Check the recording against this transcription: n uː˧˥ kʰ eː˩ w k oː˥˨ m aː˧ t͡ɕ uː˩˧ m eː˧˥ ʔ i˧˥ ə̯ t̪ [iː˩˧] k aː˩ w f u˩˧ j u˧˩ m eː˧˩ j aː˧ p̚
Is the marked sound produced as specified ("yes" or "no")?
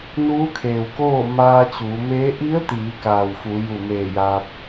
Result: yes